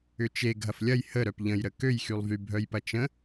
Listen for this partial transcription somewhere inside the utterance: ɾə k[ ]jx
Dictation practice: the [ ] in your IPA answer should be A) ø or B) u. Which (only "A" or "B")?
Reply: A